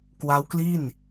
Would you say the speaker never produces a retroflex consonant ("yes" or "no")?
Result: yes